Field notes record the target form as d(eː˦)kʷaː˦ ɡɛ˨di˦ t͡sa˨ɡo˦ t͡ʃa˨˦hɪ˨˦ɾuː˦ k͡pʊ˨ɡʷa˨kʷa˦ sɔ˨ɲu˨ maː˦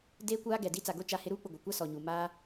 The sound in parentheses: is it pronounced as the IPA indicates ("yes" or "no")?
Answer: yes